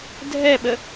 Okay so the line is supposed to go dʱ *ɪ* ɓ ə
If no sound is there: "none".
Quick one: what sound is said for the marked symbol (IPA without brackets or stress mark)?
ɛ